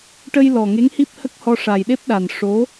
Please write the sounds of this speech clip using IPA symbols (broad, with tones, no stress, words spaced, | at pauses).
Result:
ʈə˧jlɔ˨˩ ŋe˧˥ŋhi˦˥p̚hə˦˥k̚hɔ˧ ʂa˨˩jɗe˦˥p̚ɗa˨˩n ʂo˧˥